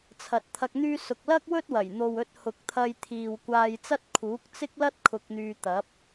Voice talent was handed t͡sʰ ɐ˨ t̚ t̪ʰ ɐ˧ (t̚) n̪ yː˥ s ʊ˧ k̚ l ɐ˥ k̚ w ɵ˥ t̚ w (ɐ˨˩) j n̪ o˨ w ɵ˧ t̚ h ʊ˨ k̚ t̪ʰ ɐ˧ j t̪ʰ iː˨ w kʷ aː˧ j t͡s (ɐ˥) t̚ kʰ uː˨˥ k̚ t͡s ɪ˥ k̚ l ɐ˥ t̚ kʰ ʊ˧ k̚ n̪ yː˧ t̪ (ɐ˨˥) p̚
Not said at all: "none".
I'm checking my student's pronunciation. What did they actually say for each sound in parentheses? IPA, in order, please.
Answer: k̚, ɐ˨˩, ɐ˥, ɐ˨˥

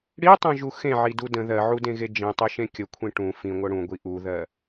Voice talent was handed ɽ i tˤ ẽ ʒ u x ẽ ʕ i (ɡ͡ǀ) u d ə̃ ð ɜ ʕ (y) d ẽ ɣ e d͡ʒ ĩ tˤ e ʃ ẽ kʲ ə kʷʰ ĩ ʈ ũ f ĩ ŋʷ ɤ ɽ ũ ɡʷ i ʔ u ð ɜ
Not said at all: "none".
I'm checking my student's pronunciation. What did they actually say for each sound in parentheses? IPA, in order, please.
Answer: d, u

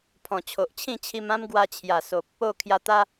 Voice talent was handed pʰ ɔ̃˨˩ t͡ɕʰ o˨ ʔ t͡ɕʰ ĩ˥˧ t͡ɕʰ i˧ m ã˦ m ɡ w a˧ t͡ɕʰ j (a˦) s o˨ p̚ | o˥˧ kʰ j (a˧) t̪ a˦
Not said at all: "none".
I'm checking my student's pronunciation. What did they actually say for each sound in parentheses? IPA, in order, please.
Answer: a˨˩, a˧

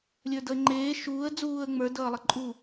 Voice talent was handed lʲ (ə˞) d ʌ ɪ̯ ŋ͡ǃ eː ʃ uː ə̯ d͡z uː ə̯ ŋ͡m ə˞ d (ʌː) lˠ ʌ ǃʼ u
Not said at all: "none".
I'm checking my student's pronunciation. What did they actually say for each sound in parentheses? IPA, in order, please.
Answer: ə˞, ʌː

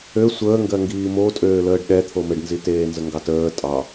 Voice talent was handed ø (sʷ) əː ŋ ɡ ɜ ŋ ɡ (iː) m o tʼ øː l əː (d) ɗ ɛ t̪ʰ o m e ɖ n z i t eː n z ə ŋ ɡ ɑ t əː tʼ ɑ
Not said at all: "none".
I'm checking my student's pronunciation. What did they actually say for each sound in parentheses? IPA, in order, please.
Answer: sʷ, iː, ɖ

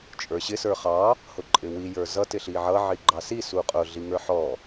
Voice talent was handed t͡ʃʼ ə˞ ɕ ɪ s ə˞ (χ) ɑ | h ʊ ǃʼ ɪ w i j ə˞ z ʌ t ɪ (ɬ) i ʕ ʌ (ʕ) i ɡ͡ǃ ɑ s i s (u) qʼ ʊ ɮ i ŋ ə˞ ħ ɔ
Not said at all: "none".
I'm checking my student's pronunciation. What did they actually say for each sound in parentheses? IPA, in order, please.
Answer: χ, ɬ, ʕ, u

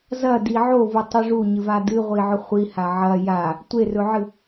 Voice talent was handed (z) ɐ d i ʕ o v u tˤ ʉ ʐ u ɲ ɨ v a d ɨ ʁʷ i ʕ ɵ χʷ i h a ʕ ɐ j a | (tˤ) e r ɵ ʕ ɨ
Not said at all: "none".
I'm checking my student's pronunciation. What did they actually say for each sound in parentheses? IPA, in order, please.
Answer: z, tʷ

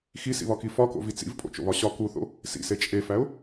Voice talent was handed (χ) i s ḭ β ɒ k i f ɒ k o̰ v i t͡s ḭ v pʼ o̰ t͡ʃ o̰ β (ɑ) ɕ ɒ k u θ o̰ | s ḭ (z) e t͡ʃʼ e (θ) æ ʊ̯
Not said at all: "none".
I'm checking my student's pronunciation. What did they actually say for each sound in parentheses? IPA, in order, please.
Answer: x, ɒ, s, f

